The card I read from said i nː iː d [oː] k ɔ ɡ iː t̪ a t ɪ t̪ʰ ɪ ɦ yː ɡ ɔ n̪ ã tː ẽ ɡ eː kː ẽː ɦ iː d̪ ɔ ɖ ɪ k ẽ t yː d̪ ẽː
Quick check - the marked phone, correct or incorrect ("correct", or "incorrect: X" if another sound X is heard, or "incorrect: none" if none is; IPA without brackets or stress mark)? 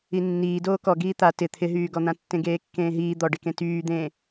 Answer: correct